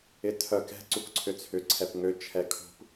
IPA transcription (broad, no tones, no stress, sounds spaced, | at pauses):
ɪ tʰ œ k ɛ̤ ǀ u k ǀʰ ʏ t͡sʰ ʏ ǀʰ ɛ p ŋ ø t͡ʃʰ ɛ kʰ ṳ p